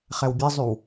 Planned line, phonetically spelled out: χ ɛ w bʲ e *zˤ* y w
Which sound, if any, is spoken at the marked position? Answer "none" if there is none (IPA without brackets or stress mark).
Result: zˤ